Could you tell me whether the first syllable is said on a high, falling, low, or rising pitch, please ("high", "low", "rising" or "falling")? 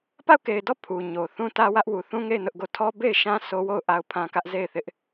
falling